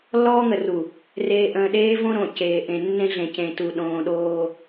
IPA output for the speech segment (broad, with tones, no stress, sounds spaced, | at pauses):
lː ɔː˦ ŋ ə˨ r u˨ | r eː˨ ʔ ə̃ː˨ ɗ eː˦ v õ˦ ɾ õ˨ c eː˨ ʔ ẽ˨ nː ẽ˦ ɮ ẽ˨ c ẽ˨ t u˨ ɗ õː˨ ɗ oː˦